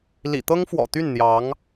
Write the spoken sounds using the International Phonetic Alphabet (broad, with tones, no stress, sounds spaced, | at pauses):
l ḭ˨˩ t̪ ɤ˥ ŋ f w ɔ̰˨˩ t̪ y˥˩ n n̪ j ɑ˧˥ ŋ